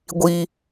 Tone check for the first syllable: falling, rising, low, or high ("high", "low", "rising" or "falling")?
high